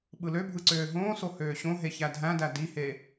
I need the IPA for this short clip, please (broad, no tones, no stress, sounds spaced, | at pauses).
ɓ ɯ l ø bʱ ɯ ǀ øː ɦ õː s o h øː ɕ õ ɦ e ç æ dʱ æ̃ d æ d i h e